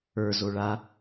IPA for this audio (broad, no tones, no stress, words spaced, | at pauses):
ə˞zo ɭa